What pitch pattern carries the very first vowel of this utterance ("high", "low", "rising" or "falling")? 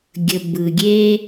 low